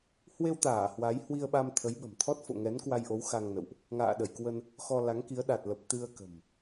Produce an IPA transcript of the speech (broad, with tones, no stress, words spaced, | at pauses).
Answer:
hwe˧wt̪aː˧˩ hwa˨˦j hwi˧ə̯ɓa˧m t̪ʰə˨˦jɓə̤˨˩mt̪ʰɔ˦˥t̚ fo̰˧˨ŋɛ˨˦nkwa˧jʔo˨˦w xa˧ŋnə̰˧˨wʔ | ŋa̰ː˧˨ɗə˧˩jkwə˧n | xɔ˧la˨˦ŋki˨˦ə̯ ɗa˨˩t̚lə˨˩p̚ t̪ɨ˧ə̯kə̤˨˩m